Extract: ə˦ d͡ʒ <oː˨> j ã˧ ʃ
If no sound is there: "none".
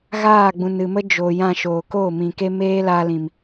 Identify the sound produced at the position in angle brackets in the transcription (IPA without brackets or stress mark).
oː˨